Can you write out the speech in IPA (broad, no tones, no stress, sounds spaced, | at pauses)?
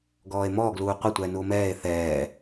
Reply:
ɡ ɔː e̯ m ɔː ɡ l uː qʷ ɐ tʷ ɛː n u o̯ m ɛː e̯ θ ɛː